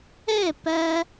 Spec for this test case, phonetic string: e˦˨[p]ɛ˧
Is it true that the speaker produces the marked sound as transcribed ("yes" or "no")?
yes